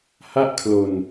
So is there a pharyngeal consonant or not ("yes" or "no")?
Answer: no